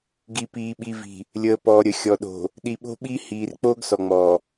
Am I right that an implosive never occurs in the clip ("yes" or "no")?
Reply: no